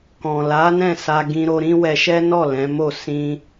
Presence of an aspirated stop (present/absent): absent